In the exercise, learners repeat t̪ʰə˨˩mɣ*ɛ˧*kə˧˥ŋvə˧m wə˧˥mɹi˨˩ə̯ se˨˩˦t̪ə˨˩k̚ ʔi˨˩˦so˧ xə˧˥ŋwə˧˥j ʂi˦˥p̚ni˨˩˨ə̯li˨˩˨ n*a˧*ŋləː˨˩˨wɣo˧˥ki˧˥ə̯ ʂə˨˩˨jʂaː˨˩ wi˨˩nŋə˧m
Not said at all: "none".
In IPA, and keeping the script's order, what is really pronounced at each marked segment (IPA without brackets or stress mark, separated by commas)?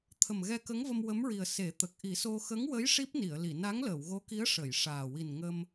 ɛ˧, a˧˥